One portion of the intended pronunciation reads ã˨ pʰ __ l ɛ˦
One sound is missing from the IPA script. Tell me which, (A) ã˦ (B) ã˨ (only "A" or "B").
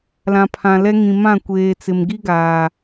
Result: B